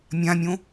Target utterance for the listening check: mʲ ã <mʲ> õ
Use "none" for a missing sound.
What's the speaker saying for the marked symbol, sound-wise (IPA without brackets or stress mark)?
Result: mʲ